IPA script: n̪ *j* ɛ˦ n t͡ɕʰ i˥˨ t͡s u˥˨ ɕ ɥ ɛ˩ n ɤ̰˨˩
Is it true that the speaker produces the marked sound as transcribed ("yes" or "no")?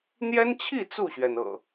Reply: yes